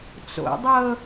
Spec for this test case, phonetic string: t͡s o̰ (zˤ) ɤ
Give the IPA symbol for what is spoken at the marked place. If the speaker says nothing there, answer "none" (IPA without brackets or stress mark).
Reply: dˤ